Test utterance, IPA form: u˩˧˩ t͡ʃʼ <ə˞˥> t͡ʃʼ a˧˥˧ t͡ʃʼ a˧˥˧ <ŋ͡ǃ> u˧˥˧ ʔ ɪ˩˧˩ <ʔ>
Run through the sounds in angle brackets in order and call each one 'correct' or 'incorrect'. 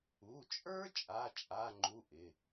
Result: correct, correct, incorrect: none

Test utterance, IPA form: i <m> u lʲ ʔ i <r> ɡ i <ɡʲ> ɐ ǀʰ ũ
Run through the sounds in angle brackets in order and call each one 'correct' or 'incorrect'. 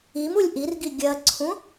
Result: correct, correct, correct

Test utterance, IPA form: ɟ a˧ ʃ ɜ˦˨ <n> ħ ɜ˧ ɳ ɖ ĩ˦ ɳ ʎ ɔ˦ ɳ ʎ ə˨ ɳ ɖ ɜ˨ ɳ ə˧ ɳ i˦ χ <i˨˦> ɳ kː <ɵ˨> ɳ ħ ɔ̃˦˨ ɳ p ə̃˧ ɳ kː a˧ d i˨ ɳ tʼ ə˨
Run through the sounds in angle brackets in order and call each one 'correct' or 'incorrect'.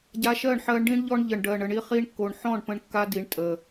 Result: incorrect: ɳ, incorrect: i˧, incorrect: o˨

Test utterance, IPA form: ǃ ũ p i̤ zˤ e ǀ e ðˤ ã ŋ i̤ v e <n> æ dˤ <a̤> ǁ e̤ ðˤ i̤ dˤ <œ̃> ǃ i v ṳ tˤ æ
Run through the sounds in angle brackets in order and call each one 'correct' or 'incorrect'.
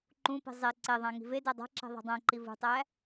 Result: incorrect: d, correct, incorrect: æ̃

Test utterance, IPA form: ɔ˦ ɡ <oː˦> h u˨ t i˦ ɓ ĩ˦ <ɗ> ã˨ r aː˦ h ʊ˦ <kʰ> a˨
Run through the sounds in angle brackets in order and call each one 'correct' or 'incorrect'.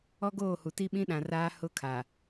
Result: incorrect: oː˦˨, correct, correct

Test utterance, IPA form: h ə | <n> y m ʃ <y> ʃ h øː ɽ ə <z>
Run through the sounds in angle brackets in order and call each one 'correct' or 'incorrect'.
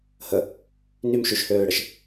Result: correct, correct, incorrect: ʃ

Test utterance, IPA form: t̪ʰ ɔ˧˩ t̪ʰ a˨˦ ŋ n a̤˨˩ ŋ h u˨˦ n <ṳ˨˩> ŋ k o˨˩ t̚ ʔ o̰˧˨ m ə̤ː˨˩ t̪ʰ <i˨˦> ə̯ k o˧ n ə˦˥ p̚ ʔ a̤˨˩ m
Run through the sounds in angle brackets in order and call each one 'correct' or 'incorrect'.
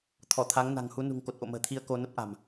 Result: correct, incorrect: i˧

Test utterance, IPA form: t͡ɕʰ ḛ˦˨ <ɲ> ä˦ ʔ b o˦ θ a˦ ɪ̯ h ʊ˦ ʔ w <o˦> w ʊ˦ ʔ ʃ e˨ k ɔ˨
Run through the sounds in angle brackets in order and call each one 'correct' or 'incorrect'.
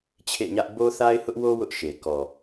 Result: correct, correct

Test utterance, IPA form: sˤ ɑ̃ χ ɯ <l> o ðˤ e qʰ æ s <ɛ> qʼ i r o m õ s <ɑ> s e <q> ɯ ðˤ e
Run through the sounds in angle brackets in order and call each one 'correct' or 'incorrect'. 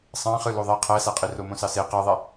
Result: correct, incorrect: æ, correct, correct

